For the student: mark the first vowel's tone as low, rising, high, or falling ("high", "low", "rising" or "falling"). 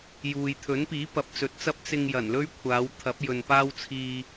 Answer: low